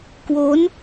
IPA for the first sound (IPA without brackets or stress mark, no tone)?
k